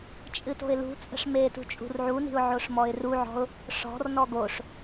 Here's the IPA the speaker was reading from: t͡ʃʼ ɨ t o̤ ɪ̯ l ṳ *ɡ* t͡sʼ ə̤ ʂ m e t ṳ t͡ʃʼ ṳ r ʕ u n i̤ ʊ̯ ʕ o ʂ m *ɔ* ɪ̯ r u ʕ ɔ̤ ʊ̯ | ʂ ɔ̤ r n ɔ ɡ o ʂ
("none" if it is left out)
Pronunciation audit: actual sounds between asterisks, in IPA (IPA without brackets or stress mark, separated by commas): none, ɔ